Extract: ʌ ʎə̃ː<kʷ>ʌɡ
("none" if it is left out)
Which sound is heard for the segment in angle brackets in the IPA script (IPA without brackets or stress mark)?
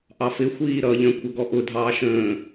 kʷʰ